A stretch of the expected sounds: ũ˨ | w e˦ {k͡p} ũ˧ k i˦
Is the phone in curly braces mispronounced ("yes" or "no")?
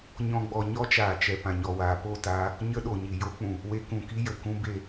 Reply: yes